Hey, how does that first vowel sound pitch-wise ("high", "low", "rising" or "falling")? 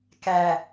low